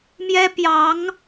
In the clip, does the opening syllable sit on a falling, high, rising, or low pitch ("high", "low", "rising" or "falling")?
high